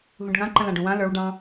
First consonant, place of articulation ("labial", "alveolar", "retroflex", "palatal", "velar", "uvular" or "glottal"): glottal